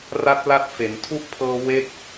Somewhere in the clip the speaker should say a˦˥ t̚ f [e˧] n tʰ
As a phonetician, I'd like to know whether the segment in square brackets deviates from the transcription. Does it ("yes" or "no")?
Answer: yes